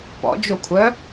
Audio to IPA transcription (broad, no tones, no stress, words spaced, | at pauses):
pɔ̰d͡ʒokʷʰœ